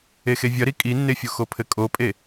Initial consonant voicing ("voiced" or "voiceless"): voiceless